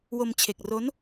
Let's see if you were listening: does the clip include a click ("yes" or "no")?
no